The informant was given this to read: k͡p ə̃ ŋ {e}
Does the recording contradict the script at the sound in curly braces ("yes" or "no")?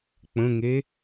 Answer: no